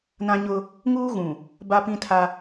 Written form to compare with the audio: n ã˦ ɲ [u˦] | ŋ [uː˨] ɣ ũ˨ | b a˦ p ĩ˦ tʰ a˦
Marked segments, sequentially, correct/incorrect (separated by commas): incorrect, incorrect